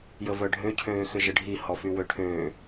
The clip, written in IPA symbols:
jəvœɖʱø cʰøːxʏʒəɖʱi hɔfywøʈʰøː

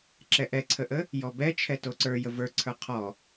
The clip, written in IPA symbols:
ǁɛʔɛǀʰəʔə | jɔbɛt͡ʃʰɛ toǀə˞ jəvə˞ǀʰə˞ qʰɔ

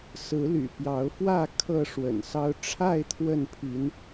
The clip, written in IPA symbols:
sɹ̩˨˦ly̰˨˩pjɑ˨˦ʊ̯fwä˥˨ kʰɤ˥˨ʂwə̰˨˩nsɑ˦ʊ̯ ʈ͡ʂʰa˥˨ɪ̯ t̪ʰwə˥˨npʰi˨˦n

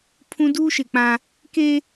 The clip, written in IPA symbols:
pʰũ˦ duː˦ʃɪ˦˨k͡pã˦ | ke˦

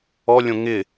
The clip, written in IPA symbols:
ɔlʲõ ŋɪ

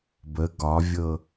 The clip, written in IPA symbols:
bə ɡɒvʲɤ

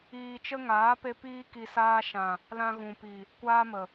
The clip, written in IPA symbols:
iː˧t͡ʃə˦ŋaː˨˦pe˧ piː˦ ki˧saː˦ ʃã˨ | lã˧ɣũ˨pi˨ | kʷaː˦mə˨

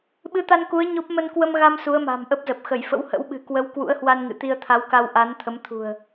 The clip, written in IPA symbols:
ɓɨ˨˦t̪a˧nku˨˦ə̯ ɲo˦˥p̚ mə˧nkwə˧mɣa˧m su˨˦ə̯ma̤˨˩mʔə˦˥p̚zə˨˩p̚ xə˧˩jfə̰˧˥whə̰˧˥w ɓɨ̤˨˩kwə˨˦w kwṵ˧˥ə̯hwa˧nŋɨ̰˧˨t̪i˧ə̯ t̪ʰa˨˦wka˧wʔa˨˦n t̪ʰə˨˦m t̪ʰṳ˨˩ə̯

